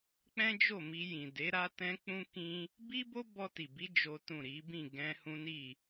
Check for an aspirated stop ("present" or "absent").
absent